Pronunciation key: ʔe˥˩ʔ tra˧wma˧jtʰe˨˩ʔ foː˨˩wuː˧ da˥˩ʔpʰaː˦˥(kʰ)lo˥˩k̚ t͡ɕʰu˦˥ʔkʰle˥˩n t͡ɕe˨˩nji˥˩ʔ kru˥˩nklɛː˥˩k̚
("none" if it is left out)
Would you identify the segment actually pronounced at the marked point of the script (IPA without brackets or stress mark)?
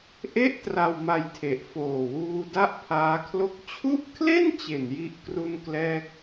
kʰ